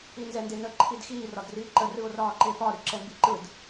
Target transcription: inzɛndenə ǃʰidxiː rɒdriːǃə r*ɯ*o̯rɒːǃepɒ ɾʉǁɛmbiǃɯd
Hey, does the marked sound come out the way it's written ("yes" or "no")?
yes